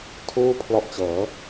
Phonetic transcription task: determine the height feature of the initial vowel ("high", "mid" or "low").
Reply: high